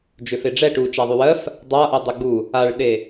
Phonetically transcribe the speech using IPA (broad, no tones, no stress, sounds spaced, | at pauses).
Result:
d͡ʒ ø f e ɖ͡ʐ ɛ ʈ u t͡ʃ a ðˤ y w ɜ f | dˤ a ʔ ɜ dˤ e ɡ͡b u | a ɭ ɗ e